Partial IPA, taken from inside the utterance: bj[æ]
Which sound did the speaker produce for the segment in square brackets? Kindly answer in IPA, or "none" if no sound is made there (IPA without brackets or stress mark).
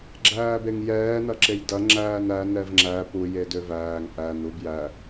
æ